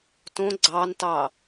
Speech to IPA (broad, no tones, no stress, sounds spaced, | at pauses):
t õ ɡ͡ǀ ɑ n t ɑ